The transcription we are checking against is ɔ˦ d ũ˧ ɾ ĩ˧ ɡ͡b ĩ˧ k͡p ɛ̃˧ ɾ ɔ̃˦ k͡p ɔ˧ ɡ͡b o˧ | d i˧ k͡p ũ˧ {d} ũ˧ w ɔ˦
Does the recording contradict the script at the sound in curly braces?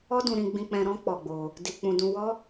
no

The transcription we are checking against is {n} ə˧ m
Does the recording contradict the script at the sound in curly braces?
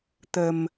yes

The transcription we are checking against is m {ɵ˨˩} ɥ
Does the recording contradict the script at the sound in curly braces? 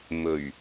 no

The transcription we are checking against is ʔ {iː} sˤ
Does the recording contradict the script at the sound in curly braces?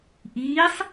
no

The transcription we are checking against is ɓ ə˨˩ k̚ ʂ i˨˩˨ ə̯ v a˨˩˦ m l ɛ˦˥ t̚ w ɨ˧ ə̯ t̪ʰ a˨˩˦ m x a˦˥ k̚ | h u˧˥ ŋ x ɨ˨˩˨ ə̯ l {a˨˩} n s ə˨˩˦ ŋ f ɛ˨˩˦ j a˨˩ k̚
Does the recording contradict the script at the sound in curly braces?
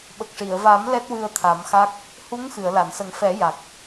yes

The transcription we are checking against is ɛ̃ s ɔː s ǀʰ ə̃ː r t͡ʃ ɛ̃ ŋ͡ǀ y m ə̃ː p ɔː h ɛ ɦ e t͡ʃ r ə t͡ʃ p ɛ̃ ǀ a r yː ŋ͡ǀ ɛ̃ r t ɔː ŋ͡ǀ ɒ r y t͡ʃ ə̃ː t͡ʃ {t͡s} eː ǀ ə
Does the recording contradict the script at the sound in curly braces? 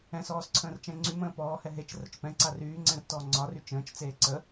no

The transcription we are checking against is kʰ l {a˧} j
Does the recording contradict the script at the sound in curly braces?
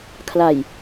yes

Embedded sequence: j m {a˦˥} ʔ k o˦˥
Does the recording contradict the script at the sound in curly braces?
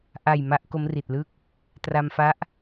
no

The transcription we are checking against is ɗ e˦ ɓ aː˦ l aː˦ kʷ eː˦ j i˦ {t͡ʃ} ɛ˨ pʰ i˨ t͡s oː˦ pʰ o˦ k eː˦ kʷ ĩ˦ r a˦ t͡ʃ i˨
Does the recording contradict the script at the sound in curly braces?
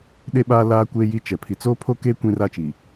no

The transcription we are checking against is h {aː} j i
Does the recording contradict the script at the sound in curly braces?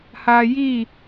no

